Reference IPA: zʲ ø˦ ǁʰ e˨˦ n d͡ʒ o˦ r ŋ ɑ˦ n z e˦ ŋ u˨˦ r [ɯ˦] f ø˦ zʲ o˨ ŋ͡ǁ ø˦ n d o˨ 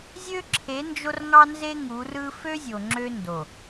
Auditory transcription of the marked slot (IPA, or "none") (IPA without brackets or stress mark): ɯ˦